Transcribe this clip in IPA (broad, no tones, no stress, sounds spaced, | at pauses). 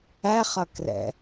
æ χ ʌ k r ɛ̰